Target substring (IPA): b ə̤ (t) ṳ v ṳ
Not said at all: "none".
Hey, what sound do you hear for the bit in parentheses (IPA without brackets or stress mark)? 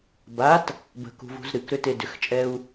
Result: k